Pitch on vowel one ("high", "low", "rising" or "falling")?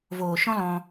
low